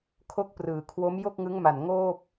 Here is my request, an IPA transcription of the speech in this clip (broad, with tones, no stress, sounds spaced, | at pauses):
kʰ o˦˥ k̚ p r ɯː˩˦ kʰ w o˦˥ m j o˥˩ k̚ ŋ ɯ˦˥ ŋ m a˨˩ n ŋ oː˥˩ p̚